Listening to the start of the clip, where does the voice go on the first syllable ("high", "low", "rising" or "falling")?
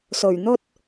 low